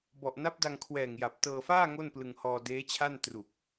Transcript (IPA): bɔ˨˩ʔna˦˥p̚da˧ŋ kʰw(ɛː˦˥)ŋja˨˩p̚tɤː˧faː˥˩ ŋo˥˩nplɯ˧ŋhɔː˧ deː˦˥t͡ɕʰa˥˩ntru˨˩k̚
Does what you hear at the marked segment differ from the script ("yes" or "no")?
yes